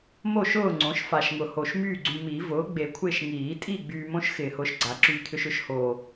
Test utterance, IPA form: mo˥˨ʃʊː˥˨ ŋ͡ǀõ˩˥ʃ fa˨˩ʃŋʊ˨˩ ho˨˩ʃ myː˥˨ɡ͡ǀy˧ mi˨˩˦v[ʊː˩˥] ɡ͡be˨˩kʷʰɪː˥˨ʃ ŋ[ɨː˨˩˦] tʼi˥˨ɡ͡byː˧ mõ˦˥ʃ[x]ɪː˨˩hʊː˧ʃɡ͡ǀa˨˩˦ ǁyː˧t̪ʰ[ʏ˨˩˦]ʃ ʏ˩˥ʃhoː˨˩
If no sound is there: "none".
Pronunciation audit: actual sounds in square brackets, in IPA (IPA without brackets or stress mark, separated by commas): ʊː˩˥, iː˨˩˦, x, ʏ˧